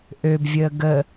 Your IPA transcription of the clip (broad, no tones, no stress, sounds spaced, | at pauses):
ʔ ø b vʲ əː ɡ ə